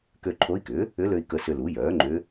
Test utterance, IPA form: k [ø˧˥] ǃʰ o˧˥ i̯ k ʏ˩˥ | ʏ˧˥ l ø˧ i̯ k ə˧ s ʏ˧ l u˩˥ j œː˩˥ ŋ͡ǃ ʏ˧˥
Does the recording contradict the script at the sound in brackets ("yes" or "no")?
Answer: yes